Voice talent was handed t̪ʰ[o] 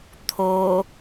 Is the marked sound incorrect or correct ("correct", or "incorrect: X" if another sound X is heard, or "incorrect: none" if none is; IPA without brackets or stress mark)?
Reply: correct